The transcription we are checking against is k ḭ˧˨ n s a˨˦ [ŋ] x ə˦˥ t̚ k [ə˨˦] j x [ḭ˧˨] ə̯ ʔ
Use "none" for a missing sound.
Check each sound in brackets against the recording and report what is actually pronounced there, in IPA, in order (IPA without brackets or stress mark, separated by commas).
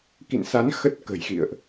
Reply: n, ə̤˨˩, ḭ˧˨